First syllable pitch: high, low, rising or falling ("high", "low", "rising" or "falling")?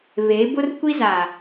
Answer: rising